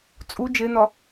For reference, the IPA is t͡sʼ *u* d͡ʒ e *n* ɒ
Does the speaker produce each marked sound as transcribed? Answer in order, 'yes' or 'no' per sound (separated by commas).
yes, yes